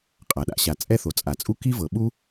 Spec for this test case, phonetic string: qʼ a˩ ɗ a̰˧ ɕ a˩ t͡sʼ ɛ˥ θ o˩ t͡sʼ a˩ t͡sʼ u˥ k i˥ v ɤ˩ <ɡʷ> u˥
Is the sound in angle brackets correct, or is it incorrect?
incorrect: ɓ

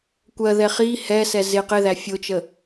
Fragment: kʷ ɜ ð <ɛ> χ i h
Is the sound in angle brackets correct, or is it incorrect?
correct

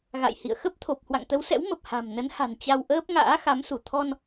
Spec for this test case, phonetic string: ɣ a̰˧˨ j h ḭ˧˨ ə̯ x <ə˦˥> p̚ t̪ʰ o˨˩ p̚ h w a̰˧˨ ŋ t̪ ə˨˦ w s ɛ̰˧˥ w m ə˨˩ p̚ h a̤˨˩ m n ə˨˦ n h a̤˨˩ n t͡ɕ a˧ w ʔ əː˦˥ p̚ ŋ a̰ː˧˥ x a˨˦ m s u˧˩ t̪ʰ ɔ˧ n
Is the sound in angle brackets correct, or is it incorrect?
correct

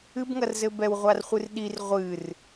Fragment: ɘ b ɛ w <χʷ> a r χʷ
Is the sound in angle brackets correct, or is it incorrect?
incorrect: ʁʷ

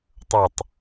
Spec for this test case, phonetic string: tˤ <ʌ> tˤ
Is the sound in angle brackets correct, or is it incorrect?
correct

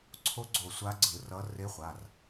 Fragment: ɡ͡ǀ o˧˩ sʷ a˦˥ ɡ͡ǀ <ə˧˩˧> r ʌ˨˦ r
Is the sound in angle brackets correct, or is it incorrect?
incorrect: ɯ˧˩˧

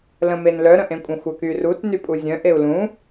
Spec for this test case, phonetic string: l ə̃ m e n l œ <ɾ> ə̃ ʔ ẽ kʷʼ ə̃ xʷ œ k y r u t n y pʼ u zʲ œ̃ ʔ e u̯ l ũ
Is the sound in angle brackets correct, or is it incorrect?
correct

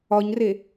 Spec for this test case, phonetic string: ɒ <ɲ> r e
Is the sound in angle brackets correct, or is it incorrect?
correct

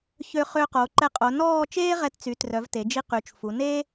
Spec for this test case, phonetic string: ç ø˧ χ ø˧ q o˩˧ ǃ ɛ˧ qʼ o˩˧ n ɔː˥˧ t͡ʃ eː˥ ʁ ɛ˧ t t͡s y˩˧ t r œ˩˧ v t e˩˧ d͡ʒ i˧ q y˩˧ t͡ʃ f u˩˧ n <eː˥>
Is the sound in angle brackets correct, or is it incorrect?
correct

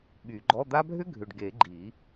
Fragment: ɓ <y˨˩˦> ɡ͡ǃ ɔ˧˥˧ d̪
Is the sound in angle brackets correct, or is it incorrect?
correct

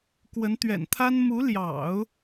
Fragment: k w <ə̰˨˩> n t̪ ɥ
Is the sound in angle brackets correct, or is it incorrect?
incorrect: ə˧˥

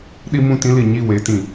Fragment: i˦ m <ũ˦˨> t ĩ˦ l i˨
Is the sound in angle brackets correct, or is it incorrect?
correct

